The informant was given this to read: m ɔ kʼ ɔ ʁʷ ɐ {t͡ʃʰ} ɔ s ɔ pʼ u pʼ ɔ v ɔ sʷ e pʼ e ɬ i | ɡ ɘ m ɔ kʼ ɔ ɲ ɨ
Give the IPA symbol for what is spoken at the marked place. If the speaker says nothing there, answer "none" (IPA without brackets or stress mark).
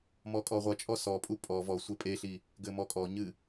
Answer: t͡ʃʼ